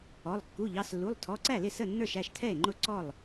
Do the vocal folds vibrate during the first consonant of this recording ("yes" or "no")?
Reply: yes